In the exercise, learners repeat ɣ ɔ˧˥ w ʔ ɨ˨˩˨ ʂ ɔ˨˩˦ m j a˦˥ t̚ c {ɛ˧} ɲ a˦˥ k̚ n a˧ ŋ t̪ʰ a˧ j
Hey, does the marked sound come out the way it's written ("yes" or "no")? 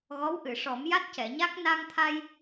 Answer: no